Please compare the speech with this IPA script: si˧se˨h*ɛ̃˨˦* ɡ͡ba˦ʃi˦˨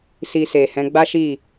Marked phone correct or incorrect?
correct